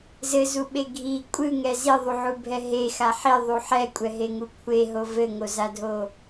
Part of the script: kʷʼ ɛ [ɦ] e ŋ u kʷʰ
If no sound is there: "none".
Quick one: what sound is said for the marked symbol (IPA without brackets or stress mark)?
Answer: ɦ